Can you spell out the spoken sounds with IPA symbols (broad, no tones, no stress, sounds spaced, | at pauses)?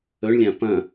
ɵ ɳ lʲ ã p ɐ̃